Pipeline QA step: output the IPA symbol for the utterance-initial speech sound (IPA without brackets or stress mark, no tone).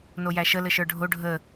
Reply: n